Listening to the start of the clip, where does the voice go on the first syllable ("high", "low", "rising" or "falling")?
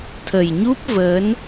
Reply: low